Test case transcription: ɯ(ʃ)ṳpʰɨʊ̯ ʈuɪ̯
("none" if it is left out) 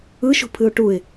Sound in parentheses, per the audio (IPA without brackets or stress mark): ʃ